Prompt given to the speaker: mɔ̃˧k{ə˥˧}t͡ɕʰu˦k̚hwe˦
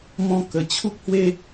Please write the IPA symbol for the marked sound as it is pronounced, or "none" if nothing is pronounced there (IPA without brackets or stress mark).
ə˨˩